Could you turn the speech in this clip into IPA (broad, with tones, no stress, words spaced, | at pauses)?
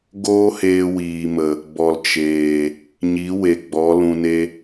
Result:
ɡoː˦heː˧wiː˨mə˨ | bɔ˨lt͡ʃeː˨ | ɲi˨˦we˨ ɡ͡bɔ˨˦ lũ˧ne˦